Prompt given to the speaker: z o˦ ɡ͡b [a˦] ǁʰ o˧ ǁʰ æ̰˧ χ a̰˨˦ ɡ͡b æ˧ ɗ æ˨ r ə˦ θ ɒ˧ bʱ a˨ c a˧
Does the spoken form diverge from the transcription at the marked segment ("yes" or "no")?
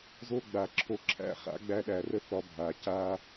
yes